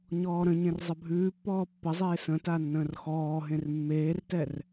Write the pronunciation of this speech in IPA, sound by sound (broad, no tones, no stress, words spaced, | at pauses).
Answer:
ɲɔːɾə̃ɲẽr zˤəbʱʉːpːɔː pːəzˤeː sə̃ tanːə̃ːrxɔːɦẽr mːeːrtɛr